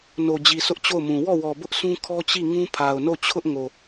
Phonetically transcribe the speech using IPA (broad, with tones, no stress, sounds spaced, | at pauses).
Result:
n o˨ d͡ʑ i˨ s ʊ˦ ʔ t͡ɕ o˦˨ ʊ̯ m ũ˨ w ɔ˦˨ w ɔ˨ b ʊ˦ ʔ sʰ ũ˦ kʰ ɔ˦ t͡ɕ i˦˨ ŋ ũ˦ pʰ a˨ ʊ̯ n o˦˨ t͡ɕʰ ʊ˦ ʔ ŋ o˨